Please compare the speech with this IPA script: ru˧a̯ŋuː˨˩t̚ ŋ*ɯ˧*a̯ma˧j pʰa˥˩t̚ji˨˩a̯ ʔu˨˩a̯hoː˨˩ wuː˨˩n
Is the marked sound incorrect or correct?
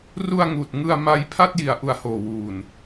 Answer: correct